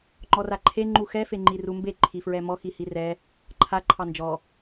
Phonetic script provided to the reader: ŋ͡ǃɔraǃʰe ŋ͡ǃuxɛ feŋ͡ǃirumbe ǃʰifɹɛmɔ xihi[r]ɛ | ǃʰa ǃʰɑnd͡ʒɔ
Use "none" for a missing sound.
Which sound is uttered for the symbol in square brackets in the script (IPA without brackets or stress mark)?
r